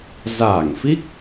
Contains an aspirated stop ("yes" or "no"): no